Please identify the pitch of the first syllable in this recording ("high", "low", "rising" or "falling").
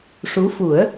rising